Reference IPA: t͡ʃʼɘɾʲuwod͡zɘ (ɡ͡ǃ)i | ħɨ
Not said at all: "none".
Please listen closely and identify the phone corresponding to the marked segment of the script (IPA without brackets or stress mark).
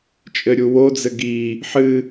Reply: ɡ